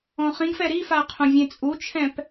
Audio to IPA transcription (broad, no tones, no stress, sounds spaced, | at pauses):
ɔ̃ χ ĩ ɡ f ɛ ɾ i f a qʰ õ vʲ ẽ t͡sʼ u t͡ʃʰ ɛ̃ p